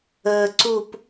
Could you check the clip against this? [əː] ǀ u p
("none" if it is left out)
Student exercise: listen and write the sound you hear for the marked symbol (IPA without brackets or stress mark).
əː